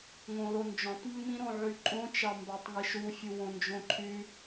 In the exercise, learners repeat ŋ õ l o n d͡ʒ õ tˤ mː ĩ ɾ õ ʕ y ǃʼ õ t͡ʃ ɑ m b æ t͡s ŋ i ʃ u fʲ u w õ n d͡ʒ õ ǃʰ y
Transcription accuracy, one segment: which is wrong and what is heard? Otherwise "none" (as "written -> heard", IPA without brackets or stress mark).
t͡s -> tˤ